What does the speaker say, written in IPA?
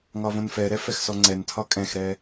ŋ ɒ v õ n f ɛ ɾ ɛ f ɛ x s ɔ ŋ͡ǀ ɛ n tʰ ɒ kʼ ɛ̃ x ɾ ɛ

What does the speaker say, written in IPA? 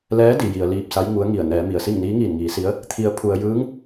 l ɛː˧˥ d i˩ j i˩ ə̯ l iː˧ p̚ s a˧˥ j ŋ u˧˥ ə̯ ŋ i˧˩ ə̯ n ɛː˩˧ m i˩ ə̯ s i˥˨ ŋ n iː˧˥ ŋ iː˧˩ n ŋ iː˩˧ s i˧˥ ə̯ | t̪ʰ i˩˧ ə̯ pʰ u˧ ə̯ j ɯː˧˥ ŋ

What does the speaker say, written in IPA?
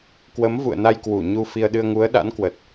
k w ə˨˦ m v ṵ˧˨ ə̯ n a˧ j k w u˧˩ ɲ u˧ f i˧ ə̯ ɗ ɨ˧ ə̯ ŋ u˨˦ ə̯ ɗ a̰˧˥ n k w ə˨˩ t̚

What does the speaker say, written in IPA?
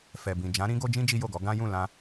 f ɛ˨ b ĩ˨ d͡ʒ ã˨˦ ɾ ĩ˦ ɡ o˦ d͡ʒ ĩ˦ d͡ʒ i˦ j o˦˨ ɡ ɔ˨˦ ɡ ã˦ j ũ˦˨ l ã˧

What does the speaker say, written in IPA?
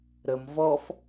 ɾ ə m v ɔ f

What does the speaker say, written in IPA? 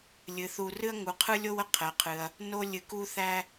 lʲ ɨ˩ θ u˨ r ɨ˦ ɐ̯ ŋ u˩ qʰ ɯ˦ lʲ o˦ w ə˦ qʰ ɛ˩ qʰ ɨ˩ ɐ̯ | n o˥ lʲ ɨ˨ k u˥ θ æ˥

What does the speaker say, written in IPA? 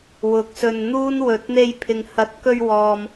w ʊ˨˥ k̚ s ɵ˧ n n̪ uː˥ n w ɵ˨ t̚ n̪ e˧ j pʰ ɪ˨ ŋ h ɐ˨˥ t̚ k ɵ˧ ɥ w ɔː˨ m

